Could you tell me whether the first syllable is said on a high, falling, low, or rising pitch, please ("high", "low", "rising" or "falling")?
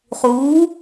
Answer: rising